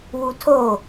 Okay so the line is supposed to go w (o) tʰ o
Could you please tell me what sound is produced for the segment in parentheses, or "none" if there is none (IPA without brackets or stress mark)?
u